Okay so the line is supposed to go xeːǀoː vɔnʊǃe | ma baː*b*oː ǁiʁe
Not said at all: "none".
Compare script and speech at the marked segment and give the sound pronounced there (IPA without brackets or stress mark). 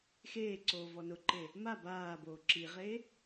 b